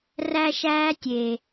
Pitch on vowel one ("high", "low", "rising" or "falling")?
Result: high